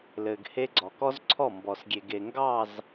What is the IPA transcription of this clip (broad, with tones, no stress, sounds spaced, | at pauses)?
l ɘ˨ ɡ h e˦ ɡ͡ǀ ɔ˨ k ɔ˦ z ǀʰ ɔ˦˨ m b ɔ˨ s ɡʲ e˨ ɡ e˨ ŋ ɡ ɑ˦˨ z